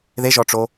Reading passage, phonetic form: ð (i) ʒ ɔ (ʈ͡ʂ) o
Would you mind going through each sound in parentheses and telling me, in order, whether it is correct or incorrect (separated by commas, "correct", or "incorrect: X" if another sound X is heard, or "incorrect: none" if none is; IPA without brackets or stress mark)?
incorrect: e, correct